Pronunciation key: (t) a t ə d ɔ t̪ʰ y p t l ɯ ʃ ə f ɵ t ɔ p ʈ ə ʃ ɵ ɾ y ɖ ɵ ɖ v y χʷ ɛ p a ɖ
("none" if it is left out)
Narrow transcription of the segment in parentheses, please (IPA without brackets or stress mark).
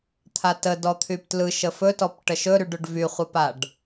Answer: t̪ʰ